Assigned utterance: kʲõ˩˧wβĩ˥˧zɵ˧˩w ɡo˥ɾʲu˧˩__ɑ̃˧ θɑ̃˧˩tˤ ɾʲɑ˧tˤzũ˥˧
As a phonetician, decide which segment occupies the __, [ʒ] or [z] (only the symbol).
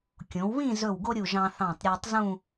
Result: ʒ